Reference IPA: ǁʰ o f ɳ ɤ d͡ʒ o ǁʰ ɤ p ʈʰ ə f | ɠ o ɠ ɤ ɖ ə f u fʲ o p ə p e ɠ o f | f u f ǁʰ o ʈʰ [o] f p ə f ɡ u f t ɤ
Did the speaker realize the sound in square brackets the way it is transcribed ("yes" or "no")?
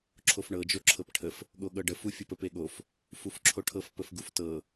no